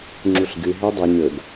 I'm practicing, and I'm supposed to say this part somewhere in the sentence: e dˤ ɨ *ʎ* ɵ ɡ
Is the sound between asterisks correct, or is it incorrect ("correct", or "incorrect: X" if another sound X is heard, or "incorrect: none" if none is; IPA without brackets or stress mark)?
incorrect: ɲ